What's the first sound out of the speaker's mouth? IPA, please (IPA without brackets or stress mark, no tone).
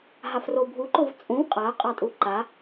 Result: ɦ